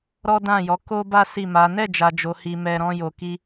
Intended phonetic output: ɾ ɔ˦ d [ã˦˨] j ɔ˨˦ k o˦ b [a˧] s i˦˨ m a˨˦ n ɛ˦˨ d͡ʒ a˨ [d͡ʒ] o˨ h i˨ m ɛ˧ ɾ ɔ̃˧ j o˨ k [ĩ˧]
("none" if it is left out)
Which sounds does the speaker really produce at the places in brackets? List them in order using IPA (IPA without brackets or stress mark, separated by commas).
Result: ã˦˨, a˦, d͡ʒ, i˧